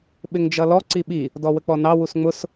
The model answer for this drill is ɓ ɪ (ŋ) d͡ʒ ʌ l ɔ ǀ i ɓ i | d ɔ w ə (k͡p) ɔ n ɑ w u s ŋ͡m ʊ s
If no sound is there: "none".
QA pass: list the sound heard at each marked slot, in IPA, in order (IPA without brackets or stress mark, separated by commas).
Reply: ŋ, k͡p